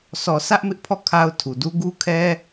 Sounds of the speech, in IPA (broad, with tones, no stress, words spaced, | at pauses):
sʰɔ˨ sʰä˦ʔmɪ˦ʔpʰɔ˦˨ kʰa˦ʊ̯tʰu˨ du˦ ɡu˦kʰɛ˦